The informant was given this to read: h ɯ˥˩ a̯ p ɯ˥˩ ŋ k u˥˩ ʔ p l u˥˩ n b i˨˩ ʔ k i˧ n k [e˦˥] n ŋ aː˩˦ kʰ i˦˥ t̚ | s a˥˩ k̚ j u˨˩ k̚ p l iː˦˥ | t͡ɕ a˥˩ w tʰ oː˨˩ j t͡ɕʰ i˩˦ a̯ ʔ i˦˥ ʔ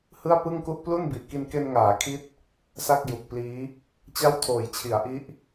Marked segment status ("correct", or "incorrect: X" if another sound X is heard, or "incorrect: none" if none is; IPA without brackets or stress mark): incorrect: e˧